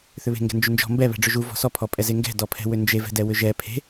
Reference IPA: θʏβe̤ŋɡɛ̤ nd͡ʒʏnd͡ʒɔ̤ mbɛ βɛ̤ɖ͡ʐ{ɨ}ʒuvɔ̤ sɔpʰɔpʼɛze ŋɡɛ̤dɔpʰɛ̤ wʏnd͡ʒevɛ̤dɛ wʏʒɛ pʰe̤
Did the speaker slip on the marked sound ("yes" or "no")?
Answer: yes